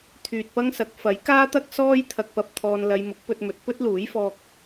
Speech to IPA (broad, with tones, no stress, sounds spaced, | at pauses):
t̪ʰ yː˨ t̚ p ɐ˥ ŋ s ɐ˨ k̚ f ɐ˨˥ j k aː˥ t̪ ɐ˥ k̚ s ɔː˥ j t̪ʰ ɐ˨ k̚ p ɐ˨˥ p̚ t̪ʰ ɔː˧ n l ɐ˧ j m ʊ˨˥ k̚ p ɵ˧ t̚ m ɵ˨˥ t̚ p ɵ˥ t̚ l uː˨˥ j f ɔː˧ k̚